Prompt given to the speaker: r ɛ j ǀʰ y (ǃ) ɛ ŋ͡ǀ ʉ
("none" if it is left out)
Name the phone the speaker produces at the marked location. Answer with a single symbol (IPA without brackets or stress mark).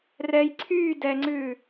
d